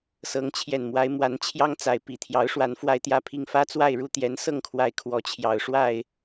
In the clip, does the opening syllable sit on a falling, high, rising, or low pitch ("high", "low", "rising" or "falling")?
rising